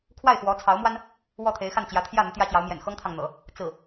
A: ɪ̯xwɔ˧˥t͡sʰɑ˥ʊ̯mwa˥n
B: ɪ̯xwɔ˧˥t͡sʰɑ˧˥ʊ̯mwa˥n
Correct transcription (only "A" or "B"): B